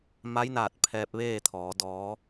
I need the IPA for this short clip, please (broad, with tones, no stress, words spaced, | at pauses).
ma˧˥jnaː˧˩t̚ pʰɛː˧p̚ʋeː˥˨t̪ʰɔː˩˧ dɔː˩˧